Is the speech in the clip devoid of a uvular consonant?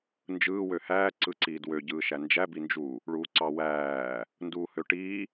yes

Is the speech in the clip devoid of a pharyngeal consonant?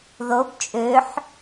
no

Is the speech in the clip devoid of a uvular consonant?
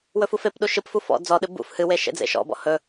yes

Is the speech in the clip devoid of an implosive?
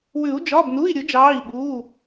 no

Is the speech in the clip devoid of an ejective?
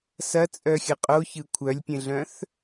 no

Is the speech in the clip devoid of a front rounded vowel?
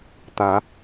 yes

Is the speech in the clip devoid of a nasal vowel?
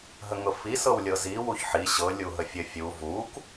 yes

